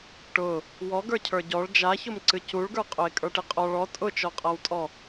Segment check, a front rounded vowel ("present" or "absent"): absent